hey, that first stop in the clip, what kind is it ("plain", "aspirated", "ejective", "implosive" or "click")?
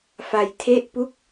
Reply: aspirated